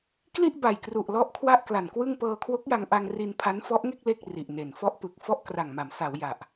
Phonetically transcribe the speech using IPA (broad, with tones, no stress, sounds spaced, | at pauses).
k l i˥˩ ʔ b a˨˩ j k r u˨˩ ʔ l ɔ˥˩ ʔ kʰ w a˥˩ ʔ k l a˨˩ n k w ɯ˥˩ ŋ p ɤː˧ kʰ w o˦˥ k̚ j a˧ ŋ ʔ a˧ ŋ r i˧ n pʰ a˦˥ n f ɔ˦˥ ʔ ŋ e˥˩ k̚ l e˥˩ k̚ r i˨˩ ʔ n e˨˩ n f ɔ˦˥ ʔ p ɯ˨˩ k̚ f ɔ˥˩ ʔ k r a˨˩ ŋ m a˩˦ m s a˩˦ w j a˨˩ ʔ